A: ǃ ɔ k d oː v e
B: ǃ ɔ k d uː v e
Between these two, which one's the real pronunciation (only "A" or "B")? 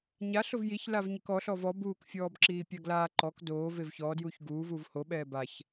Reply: A